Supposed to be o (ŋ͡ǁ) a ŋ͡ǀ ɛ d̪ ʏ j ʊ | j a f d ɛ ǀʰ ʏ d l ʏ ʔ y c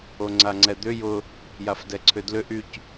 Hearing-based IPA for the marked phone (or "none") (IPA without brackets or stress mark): ŋ͡ǀ